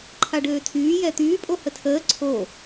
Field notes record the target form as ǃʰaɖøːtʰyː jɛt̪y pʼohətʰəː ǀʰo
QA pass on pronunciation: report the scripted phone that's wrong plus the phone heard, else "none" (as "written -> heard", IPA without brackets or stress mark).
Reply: y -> yː